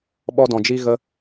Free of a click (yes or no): yes